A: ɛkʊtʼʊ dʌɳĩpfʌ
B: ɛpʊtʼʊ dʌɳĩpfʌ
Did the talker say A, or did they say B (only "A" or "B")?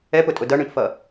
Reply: B